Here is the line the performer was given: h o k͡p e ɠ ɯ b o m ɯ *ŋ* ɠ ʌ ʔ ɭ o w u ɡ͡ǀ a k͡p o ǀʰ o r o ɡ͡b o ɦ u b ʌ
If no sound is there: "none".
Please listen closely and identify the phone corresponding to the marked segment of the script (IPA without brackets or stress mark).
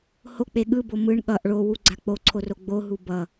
ɳ